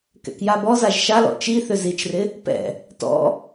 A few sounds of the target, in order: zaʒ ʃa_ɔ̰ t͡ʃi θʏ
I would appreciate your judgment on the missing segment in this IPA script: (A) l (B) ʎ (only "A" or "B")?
A